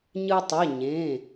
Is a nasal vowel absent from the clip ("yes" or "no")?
no